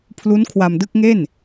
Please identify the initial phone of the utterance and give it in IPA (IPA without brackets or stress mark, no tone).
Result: pʰ